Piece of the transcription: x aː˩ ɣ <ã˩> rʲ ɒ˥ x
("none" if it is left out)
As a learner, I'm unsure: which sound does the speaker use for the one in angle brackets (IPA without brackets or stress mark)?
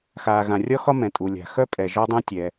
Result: ã˩